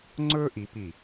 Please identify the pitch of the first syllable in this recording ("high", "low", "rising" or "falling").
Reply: high